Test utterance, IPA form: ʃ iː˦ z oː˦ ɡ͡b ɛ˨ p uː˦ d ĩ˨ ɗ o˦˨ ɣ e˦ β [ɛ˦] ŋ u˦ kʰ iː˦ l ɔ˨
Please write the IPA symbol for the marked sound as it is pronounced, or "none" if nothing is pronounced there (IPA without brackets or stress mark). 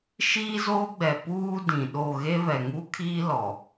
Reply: ɛ˨